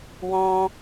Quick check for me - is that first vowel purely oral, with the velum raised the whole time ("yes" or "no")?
no